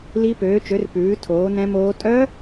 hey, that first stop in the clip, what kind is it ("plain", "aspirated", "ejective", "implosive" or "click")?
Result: plain